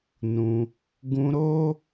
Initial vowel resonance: nasal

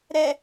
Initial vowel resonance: oral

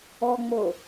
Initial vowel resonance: oral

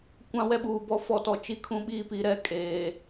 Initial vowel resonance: nasal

